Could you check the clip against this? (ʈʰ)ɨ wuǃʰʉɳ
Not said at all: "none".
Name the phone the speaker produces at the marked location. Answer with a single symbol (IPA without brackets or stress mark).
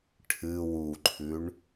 ʈʰ